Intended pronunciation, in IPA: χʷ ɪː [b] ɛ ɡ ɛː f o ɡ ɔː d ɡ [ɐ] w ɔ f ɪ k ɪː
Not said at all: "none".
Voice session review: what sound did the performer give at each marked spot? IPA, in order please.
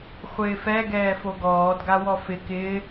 f, a

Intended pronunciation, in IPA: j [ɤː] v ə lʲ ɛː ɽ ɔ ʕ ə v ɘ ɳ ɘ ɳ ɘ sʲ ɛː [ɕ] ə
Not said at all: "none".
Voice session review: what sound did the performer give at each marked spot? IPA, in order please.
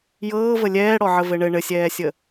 ɤː, sʲ

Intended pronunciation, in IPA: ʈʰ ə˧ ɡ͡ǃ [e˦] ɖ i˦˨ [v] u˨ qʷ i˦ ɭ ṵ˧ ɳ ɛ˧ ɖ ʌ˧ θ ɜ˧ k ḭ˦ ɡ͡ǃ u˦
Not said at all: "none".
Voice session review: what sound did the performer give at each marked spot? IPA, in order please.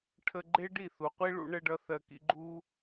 e˦, θ

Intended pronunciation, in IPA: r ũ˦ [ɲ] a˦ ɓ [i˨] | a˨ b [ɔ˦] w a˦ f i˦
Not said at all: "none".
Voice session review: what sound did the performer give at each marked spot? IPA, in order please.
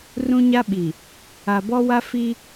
ɲ, i˨, ɔ˦

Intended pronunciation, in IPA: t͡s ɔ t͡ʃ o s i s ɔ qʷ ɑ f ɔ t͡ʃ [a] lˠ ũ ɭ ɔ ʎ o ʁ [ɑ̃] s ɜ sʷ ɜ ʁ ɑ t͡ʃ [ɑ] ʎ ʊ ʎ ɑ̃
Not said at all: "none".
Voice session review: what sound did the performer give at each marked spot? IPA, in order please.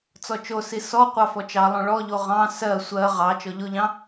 ɑ, ɑ̃, ɔ

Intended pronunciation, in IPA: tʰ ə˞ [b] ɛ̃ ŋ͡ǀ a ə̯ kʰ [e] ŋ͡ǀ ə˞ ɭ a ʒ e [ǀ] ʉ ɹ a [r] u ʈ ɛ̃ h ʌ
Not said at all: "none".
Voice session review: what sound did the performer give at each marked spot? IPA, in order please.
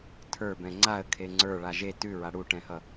b, e, t, ɽ

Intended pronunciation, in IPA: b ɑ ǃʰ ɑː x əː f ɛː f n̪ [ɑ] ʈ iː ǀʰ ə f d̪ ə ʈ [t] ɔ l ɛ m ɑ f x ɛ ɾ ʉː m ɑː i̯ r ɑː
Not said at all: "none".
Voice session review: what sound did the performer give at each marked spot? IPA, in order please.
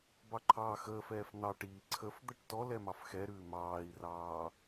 ɑ, t

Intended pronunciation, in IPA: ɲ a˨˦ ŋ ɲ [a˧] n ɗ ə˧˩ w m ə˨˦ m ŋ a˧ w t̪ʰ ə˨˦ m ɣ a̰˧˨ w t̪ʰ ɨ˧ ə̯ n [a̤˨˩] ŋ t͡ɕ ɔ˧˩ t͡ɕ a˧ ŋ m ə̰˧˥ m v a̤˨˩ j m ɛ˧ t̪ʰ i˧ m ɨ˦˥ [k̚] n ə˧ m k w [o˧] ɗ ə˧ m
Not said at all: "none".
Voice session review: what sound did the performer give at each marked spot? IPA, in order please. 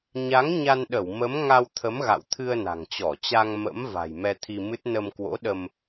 a˧, a̤˨˩, t̚, o̰˧˥

